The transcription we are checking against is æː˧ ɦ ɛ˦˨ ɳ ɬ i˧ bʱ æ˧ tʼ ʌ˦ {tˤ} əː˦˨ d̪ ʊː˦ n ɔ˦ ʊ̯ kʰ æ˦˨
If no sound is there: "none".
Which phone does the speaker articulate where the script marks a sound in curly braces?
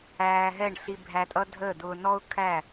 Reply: dʱ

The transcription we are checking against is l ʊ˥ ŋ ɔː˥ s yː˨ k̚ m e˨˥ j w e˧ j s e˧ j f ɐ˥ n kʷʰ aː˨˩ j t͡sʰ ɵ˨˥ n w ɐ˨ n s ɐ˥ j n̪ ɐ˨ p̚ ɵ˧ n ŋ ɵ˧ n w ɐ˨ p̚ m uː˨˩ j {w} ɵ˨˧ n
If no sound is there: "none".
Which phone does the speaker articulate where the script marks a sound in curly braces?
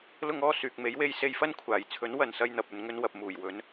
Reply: w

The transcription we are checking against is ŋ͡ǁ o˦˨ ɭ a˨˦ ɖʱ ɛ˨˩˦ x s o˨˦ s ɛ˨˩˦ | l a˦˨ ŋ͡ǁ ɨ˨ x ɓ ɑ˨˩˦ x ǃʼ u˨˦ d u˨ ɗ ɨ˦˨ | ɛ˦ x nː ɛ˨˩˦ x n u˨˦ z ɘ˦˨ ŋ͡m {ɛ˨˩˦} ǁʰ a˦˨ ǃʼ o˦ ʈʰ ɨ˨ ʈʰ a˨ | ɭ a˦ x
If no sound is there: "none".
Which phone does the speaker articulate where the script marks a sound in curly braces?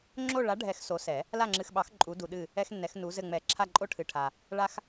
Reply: ɛ˨˩˦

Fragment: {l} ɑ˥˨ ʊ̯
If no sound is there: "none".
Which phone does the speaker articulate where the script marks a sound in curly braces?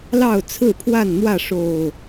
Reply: l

